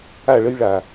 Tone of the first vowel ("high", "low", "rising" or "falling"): falling